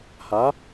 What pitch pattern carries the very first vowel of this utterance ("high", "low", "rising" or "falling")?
rising